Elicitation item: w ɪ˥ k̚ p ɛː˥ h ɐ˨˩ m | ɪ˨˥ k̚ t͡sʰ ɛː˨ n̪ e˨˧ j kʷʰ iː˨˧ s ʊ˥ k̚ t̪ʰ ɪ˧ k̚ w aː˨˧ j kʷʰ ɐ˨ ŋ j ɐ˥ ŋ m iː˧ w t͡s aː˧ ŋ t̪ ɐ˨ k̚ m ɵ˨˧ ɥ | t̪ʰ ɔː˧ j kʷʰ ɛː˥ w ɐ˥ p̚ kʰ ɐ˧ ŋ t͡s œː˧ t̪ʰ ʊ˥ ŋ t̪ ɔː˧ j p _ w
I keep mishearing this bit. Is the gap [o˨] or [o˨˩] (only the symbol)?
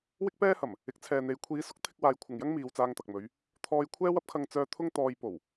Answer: o˨˩